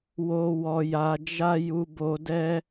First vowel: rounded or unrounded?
rounded